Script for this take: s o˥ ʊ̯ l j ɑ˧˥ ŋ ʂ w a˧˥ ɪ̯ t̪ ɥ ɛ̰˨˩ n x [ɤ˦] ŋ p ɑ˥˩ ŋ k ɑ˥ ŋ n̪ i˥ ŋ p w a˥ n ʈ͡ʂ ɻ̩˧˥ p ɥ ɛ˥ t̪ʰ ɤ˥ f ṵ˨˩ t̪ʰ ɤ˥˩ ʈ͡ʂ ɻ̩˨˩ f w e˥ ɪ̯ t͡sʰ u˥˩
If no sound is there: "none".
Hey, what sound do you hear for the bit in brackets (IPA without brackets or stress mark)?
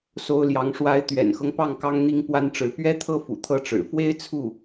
ɤ˦